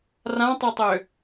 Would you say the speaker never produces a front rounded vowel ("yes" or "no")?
no